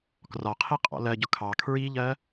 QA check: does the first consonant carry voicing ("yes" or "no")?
no